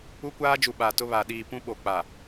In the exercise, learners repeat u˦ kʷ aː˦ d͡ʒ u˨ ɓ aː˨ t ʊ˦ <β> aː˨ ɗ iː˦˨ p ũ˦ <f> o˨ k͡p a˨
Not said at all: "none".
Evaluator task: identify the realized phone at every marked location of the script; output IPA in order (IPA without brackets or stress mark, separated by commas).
β, ɓ